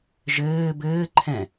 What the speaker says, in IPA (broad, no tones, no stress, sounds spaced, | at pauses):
ʒ ɘː b ɘː ǃʰ ɛ̃